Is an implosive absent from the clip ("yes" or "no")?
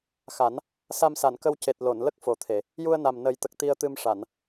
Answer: yes